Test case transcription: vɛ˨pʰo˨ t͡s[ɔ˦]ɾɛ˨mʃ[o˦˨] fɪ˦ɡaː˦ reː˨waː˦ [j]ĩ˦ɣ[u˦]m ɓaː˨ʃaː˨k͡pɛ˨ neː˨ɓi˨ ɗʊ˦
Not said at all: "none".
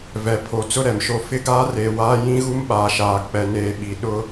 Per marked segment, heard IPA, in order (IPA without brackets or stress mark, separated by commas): ʊ˦, o˦˨, j, u˦